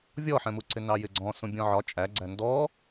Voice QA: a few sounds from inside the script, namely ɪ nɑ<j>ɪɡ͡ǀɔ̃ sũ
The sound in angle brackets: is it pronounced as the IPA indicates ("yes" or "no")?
yes